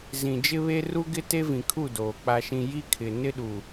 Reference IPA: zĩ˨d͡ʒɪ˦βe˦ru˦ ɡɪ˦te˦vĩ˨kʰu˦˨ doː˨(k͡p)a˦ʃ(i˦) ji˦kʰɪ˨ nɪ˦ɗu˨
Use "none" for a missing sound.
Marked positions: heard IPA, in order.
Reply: k͡p, ĩ˦

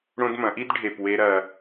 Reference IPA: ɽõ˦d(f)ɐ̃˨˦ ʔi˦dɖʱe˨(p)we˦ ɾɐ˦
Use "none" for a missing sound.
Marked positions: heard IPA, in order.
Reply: m, p

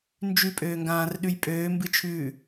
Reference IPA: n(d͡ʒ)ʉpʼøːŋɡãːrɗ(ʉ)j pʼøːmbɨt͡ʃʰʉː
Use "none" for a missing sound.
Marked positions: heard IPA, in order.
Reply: d͡ʒ, ʉ

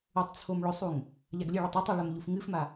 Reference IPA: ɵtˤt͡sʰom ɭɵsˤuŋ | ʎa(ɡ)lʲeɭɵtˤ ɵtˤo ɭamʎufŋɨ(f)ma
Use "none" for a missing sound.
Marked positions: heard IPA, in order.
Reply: ɡ, f

